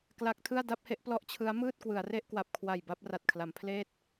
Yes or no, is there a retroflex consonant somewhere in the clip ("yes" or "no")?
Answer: no